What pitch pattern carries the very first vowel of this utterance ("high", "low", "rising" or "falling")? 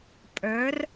rising